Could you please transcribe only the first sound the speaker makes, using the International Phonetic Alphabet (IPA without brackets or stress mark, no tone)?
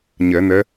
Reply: ɲ